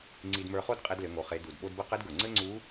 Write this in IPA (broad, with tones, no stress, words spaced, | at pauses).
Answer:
ŋ͡ǀi˧dmə˞˧χo˥d qʼe˧dlɘ˩˧ŋo˩˧ χe˩˧du˩d ɓo˧dbɘ˧˥ qɘ˧˥dɡə˞˩ ŋ͡ǀɘ˥ŋ͡ǀu˧˥